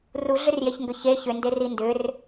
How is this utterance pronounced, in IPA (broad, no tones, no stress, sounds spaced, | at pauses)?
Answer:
r u ɮ ʏ r j e ç ŋ ɡ ʏ ç e ç ʏ n d e r i n d ʏ r